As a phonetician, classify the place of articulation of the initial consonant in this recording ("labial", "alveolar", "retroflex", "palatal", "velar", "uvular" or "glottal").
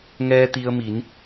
velar